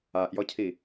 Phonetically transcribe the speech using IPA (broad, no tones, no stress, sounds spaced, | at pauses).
a ʔ j ɔ cʰ i